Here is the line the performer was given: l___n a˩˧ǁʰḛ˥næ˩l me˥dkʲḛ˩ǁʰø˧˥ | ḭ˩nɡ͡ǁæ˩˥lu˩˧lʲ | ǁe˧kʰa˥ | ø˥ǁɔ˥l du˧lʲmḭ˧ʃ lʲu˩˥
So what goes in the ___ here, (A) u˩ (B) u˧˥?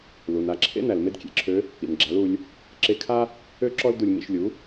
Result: A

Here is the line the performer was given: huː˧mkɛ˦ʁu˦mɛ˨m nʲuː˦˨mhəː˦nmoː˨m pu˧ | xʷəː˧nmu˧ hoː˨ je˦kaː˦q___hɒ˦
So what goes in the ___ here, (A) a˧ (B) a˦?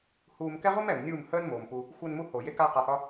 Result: A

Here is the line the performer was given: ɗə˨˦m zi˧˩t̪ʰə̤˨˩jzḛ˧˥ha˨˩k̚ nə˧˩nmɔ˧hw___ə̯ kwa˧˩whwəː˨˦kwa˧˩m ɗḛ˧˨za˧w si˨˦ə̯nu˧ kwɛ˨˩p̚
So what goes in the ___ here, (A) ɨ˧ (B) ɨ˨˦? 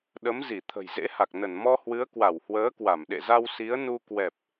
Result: B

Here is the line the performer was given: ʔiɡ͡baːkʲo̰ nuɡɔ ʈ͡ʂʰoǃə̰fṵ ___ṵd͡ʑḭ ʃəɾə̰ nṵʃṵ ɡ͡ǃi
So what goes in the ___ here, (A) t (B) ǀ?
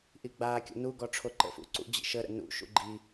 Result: B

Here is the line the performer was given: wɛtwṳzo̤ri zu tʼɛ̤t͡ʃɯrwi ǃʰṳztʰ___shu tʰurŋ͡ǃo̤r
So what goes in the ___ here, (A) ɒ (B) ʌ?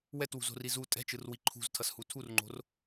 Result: B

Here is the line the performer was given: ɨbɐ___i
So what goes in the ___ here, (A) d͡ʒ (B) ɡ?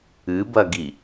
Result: B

